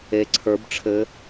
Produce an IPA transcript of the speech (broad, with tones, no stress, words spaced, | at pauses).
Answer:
e˧ǀʰə˞˧˥bʈ͡ʂʰɘ˧˥